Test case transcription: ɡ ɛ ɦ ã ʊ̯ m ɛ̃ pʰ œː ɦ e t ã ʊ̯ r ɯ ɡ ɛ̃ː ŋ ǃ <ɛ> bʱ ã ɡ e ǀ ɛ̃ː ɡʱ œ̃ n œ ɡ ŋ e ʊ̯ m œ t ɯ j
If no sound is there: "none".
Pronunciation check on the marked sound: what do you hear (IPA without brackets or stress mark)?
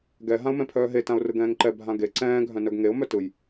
ɛ